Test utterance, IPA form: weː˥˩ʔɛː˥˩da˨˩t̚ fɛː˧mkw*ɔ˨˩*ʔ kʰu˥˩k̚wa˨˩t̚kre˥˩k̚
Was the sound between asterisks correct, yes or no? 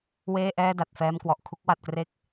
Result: yes